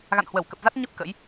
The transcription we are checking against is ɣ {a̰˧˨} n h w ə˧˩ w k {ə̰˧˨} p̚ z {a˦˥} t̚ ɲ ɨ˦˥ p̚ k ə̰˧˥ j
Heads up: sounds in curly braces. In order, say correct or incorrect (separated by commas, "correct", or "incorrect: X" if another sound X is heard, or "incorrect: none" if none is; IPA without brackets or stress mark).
correct, incorrect: ə˨˩, correct